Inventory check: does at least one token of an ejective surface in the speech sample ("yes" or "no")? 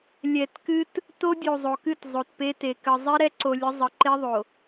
no